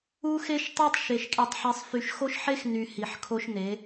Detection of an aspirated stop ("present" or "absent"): present